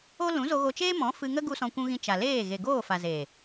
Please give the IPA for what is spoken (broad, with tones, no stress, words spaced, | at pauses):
o˦ lũ˨˦zo˧ɣo˧t͡ʃeː˦ mɔ̃˨˦ fɨ˧ŋə˦ ɡu˧ sɔ̃˧kʷũ˧ɣĩ˧ t͡ʃa˨leː˦˨ ɣe˨ɡoː˦˨fa˨ ze˨